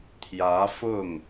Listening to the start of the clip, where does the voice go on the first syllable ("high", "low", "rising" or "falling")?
rising